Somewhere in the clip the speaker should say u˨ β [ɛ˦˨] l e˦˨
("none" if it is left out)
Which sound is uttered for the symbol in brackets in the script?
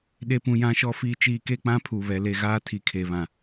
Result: ɛ˨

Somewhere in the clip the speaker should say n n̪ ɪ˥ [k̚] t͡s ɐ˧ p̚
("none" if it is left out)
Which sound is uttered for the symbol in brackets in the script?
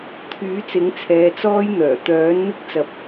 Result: k̚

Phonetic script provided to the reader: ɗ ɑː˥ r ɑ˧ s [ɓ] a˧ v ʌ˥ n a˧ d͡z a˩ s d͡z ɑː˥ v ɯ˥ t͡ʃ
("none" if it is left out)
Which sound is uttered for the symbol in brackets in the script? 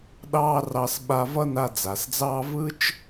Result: ɓ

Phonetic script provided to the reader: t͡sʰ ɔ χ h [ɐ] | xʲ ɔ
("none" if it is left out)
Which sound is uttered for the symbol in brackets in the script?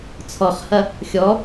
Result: ɐ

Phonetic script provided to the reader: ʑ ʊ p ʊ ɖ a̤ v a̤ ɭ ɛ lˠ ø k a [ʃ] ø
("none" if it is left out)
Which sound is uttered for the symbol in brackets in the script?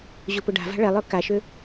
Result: ʃ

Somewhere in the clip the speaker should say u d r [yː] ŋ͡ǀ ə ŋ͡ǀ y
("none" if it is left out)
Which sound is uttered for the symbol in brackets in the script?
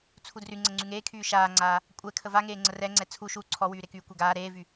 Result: y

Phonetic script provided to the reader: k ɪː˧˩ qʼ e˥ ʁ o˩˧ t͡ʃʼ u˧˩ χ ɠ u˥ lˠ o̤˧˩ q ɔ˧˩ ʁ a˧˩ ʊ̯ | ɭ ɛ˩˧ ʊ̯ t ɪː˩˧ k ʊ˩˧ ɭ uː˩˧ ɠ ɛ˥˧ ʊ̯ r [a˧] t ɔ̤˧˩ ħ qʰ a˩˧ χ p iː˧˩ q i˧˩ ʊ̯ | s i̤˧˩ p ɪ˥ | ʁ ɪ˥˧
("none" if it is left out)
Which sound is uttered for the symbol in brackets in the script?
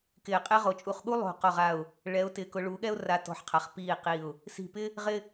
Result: a˧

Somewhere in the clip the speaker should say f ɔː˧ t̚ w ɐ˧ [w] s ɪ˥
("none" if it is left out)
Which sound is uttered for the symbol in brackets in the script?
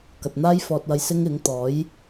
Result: j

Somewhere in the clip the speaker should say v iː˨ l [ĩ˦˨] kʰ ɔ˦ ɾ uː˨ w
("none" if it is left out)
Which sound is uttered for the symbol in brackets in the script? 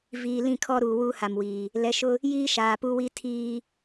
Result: ĩ˦˨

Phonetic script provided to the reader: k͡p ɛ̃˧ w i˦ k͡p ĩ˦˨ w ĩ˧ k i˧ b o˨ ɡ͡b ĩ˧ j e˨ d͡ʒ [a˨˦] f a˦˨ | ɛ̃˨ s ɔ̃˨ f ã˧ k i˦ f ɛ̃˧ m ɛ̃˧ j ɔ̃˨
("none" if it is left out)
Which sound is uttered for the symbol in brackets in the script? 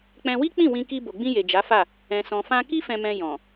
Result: a˨˦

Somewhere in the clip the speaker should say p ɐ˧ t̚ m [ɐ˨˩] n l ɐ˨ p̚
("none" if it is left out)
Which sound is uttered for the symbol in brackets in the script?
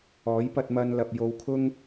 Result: ɐ˧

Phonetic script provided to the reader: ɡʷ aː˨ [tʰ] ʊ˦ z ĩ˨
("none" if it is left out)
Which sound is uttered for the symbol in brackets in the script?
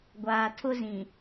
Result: tʰ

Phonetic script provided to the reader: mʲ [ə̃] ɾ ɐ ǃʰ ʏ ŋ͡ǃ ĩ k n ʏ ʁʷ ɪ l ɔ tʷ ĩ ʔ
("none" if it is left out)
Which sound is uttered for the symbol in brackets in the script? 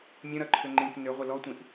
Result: ə̃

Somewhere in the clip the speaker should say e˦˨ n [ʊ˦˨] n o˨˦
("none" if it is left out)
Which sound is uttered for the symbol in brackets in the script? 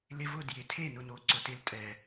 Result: ʊ˦˨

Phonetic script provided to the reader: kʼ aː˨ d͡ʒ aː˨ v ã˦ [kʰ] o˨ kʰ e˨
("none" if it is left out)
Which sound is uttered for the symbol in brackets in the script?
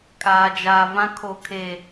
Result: kʰ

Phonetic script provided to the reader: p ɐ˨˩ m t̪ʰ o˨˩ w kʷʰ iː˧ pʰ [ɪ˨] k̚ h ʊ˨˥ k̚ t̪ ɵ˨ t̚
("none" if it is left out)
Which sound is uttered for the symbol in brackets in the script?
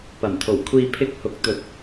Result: ɪ˧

